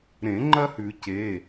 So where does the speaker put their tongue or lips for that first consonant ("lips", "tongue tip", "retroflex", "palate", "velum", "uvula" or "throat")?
tongue tip